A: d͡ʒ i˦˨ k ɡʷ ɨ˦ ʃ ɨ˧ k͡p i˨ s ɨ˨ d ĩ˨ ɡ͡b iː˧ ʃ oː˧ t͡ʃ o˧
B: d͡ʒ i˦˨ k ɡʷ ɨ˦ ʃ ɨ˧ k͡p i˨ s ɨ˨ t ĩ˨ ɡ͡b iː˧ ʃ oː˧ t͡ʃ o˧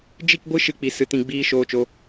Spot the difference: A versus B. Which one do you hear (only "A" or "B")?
B